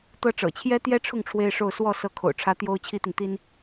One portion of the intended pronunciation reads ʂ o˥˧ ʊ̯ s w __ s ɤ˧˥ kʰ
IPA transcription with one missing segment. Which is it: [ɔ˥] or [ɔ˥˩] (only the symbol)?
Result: ɔ˥˩